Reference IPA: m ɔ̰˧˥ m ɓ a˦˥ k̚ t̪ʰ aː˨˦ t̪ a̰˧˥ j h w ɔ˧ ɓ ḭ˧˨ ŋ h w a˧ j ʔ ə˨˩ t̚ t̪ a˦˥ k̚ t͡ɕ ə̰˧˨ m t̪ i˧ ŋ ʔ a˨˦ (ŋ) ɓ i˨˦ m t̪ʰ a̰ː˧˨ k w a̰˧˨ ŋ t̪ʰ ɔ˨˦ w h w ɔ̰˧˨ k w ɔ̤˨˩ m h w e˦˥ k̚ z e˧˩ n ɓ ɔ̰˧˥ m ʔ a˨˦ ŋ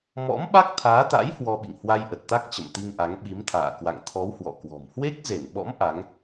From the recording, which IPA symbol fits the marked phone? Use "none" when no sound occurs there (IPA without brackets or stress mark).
ŋ